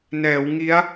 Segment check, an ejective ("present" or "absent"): absent